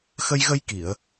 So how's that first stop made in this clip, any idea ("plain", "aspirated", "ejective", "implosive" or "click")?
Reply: plain